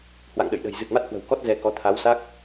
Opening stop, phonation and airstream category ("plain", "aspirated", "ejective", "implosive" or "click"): implosive